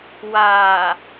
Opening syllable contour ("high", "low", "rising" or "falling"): low